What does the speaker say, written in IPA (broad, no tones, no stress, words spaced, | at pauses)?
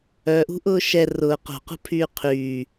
œʔṳʔʊː ʃɛ rʊː qo̤qṳpʰyː qʰyː